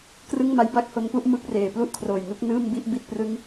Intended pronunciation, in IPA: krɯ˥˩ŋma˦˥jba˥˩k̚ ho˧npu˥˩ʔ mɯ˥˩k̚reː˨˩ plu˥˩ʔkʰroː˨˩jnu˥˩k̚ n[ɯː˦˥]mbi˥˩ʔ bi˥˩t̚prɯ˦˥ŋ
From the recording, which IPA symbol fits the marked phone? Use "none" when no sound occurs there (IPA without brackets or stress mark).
ɯː˥˩